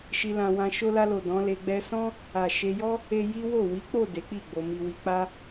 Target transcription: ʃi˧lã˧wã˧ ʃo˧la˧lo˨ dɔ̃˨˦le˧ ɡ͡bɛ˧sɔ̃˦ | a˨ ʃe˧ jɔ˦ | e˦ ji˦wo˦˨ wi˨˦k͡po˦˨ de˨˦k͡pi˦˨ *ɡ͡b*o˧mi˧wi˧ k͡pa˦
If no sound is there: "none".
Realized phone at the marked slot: ɡ͡b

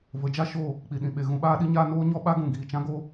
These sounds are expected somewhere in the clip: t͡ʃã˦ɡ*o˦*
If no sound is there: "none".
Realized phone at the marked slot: o˦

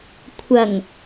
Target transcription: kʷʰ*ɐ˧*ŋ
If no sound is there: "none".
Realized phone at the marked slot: ɐ˨˩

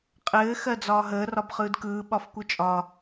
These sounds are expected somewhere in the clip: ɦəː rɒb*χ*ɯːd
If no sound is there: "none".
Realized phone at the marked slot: χ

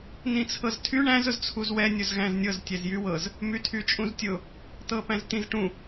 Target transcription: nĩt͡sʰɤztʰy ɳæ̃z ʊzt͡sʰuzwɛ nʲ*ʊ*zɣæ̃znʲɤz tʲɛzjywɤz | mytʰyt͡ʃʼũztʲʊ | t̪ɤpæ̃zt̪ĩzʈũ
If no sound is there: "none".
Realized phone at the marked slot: ʊ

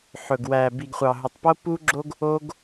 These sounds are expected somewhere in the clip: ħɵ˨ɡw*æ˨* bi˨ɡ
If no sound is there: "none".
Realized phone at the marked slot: æ˨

